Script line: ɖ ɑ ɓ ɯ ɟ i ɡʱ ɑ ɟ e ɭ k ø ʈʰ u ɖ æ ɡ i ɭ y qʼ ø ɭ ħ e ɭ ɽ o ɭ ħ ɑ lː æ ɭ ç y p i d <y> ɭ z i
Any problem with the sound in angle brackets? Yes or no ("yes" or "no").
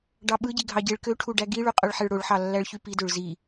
yes